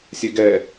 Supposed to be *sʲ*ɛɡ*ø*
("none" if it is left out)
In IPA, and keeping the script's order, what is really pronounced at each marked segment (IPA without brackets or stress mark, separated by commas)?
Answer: sʲ, ɛ